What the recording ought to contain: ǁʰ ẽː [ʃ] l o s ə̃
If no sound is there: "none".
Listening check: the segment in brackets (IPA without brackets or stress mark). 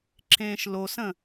ʃ